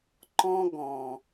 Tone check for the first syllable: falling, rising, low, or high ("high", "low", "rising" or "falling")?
high